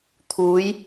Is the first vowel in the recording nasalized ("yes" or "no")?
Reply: no